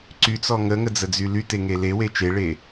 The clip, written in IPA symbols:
ǀyt͡sɔ ŋəŋəd͡zəd͡zy lyteŋe lewe t͡ʃeɭe

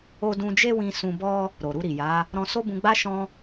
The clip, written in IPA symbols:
o˦ dũ˧d͡ʒe˦wĩ˧ sũ˧bɔ˦ | ɾo˨ɾu˧ɾi˨ja˨˦ | ɾɔ̃˧so˦bũ˧ɡ͡ba˦ ʃɔ̃˧

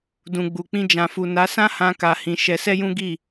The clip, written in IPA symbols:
dũ˨ɡ͡bu˨k͡pĩ˧ d͡ʒã˨fu˨na˨˦sã˦ hã˧ka˨ hĩ˨˦ ʃɛ˧sɛ˦jũ˦ ɡi˦˨

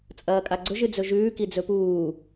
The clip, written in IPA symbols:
t͡sʼɐːkʼaɡ͡ǀɵʒ ɨd͡zɵʒʉː kid͡zɵpuː

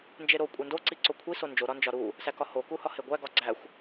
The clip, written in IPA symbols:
nd͡ʒeɾo kʷʼendo ǀiǀokʷʰi sond͡ʒo ɾɒnd͡ʒɒɾu | sækɒho kuhɒheɡʷæ ɡɒɡ͡ǀæxʷ

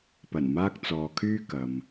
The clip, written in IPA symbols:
pɐ˨˩nmaː˧k̚ t͡sɔː˨kʰyː˥kɐ˨m

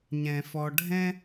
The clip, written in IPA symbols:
ɲɛ̃˩fɔ˨ɖʱɛ̃˦

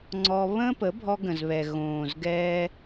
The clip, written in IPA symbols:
ŋ͡ǀɔ˧ βə̃ː˦pə˨˦ bʱɔ˧ɡə̃˨zβɛ˨ ɣõː˨zɡɛː˧

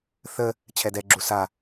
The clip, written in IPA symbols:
θə | t͡ɕʰɛdɛɡ͡ǁu sa

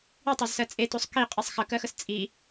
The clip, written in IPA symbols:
itˤozsɜ t͡sʼetosˤ kiqʼisˤ xəkɜxəs t͡sʼi

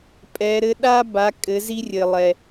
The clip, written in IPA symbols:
pʼɛ˩˧ɾɘ˧ ɗa˥ ba˩˧ kʼɘ˩˧zi˧rʲɘ˩lˠɛ˩

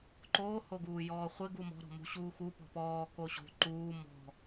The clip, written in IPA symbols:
ǃoːhoɡuː jɔːχʷɪ ɡumɔ̤ɾɔ̤ mṳɕuːxu pɔ̤pɔː koɕo̤ ǃuː mɔ̤

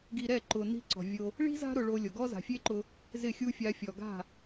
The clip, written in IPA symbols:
ɡi˧ɾɛ˦˨ ǃʊ˨ni̤˧ǀɔ̤˨ vʲo˧ | ɭi̤˦za̤˦ ɾʊ˧ɭo˧lʲo˨ ɡɔ˦za̤˨fʲe˦ǃʊ˧ | zɪ˦˨xʲu˦ fʲa˧fʲɔ˨ɡa̤˦˨

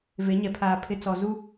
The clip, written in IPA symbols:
ve˨˦ ɲɛ˨pʰaː˨ pʰɪ˨t͡sɔ˨ zu˦

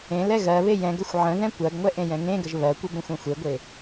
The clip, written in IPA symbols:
ẽ lɛɣɜβe jɛ̃ɡəxʷ ʕə̃ðɛ̃ kʷɜɡŋʷɛ ʔẽjɛ̃ŋẽɡəʒ βɜkʷə bə̃xʷɛ̃xʷeɡʷe

